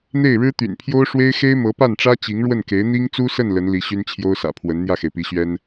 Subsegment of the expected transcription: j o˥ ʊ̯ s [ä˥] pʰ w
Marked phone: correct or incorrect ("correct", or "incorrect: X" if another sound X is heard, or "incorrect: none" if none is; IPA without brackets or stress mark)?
incorrect: ä̰˨˩